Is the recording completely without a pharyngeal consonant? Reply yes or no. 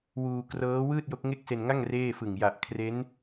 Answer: yes